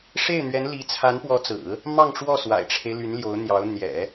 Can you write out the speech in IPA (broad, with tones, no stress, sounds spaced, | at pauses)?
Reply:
ʂ e˥˩ ɪ̯ n̪ ɥ ɛ˧˥ n l i˧˥ t͡sʰ a˧˥ n p w ɔ˧˥ t͡s ɹ̩˨˩˦ | m ɑ˥˧ ŋ ʈ͡ʂ w ɔ˥˩ s w a̰˨˩ ɪ̯ ʈ͡ʂʰ e˦ ɪ̯ l y˧˥ n l j o˧˥ ʊ̯ n̪ j ɑ˧˥ ʊ̯ n̪ j ɛ̰˨˩˦